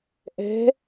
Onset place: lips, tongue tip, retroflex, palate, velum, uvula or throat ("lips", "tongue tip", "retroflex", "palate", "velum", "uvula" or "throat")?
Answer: throat